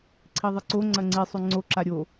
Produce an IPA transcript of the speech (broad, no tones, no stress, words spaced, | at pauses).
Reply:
ǀʰiðˤɨǀo ŋ͡ǀɐŋ͡ǀisˤʉ ŋ͡ǀoǁa ɾʲo